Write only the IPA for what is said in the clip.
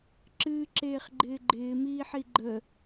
ǁ ɨː ǁ eː χ ɡ͡ǃ ɪː ɡ͡ǃ ɪː m iː ħ i ɡ͡ǃ ə

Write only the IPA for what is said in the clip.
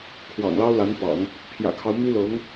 kʰ w ɑ̰˨˩ ŋ l ɑ˥ ʊ̯ l a˧˥ n p ɑ̰˨˩˦ ŋ | pʰ j ä̰˨˩ kʰ ɑ˦ ʊ̯ m y˥ l ɤ˧˥ ŋ

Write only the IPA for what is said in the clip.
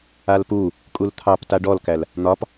a l p u | kʼ u l t̪ʰ ɑ p t a ɖ ɔ l k æ l | n̪ ɒ p

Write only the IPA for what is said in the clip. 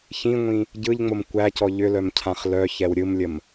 ç ĩ ŋʷ ĩ | ɟ ɯ ʎ ŋ͡m o m kʷ æ c ɔ ʎ ʏ l œ m cʰ ã χ l œ ç ɛ w ɾʲ ɯ m lʲ ə m

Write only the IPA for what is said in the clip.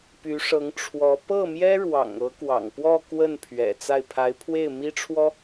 p y˧˥ ʂ ɤ˧˥ ŋ ʈ͡ʂʰ w ɔ˧˥ p ɤ˥˩ m j ɛ˥ ɻ w ɑ̰˨˩ ŋ ɤ˧˥ k w ɑ̰˨˩ ŋ p w ɔ˥˧ k w ə˥˩ n pʰ ɥ ɛ̰˨˩ t͡s a˥˩ ɪ̯ pʰ a˧˥ ɪ̯ pʰ w e˥˩ ɪ̯ m i˥ ʈ͡ʂʰ w ɔ˥

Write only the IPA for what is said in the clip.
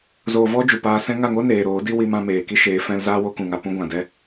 z oː˨ v ɔ˦ d͡ʒ u˨ p aː˧ s ɛ̃˧ ŋ a˦˨ ŋ o˦ n eː˨ ɾ oː˨˦ d i˦ w i˧ m ã˧ m eː˨ k i˦ ʃ eː˨˦ f ɛ̃˧ l z aː˦ w o˦ k ũ˨ ŋ a˨ p ũ˧ ɡʷ ã˨ d ɛ˧

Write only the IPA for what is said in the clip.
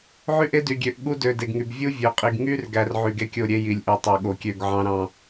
ʕ y˦ ʔ e˦ d y˨ ɡʲ ø˨ ʔ ɠ u˦ d ø˨ d e˨ ɡ ŋ y˨ b vʲ u˦ vʲ ø˨ qʼ i˨ ɡ ŋ y˦ r ɡ æ˦ r ʕ y˨ ɡ e˦ kʲ o˦˨ ɾʲ e˦ j i˨ lʲ ʔ y˨ tˤ ø˨ ɠ o˨ kʲ ø˦˨ ɡ ʕ ɑ̃˦ ɾ ɑ̃˨

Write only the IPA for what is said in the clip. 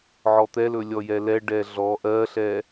ʕ ɔ t̪ ɛ l ɵ lʲ ɔ j ɛ l ɛ ɖ ɛ ɮ ɔ ʔ ɜ ɬ ɛ

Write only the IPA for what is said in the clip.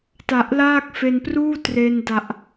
t a˨˩ ʔ l aː˥˩ k̚ f e˧ n p r uː˥˩ t r e˧ n d a˨˩ ʔ

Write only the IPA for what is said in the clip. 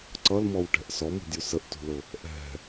ǀ ʌ l m ɔ w ʈ ɛ̤ ʔ s ɔ m ṳ dʲ u s ə ʔ t ṳ l ʊ | ʔ ɛ̤

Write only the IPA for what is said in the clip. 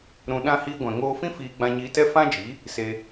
ɾ ũ˧ ɗ ã˦ h iː˧ ɡʷ ɛ̃˨ ŋ oː˧ f ĩ˦ f iː˧ ɡ͡b ã˧ ɲ iː˧ t ɛ˦ f ã˦ d͡ʒ i˨˦ | s e˧

